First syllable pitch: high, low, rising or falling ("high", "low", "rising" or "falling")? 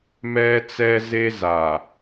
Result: high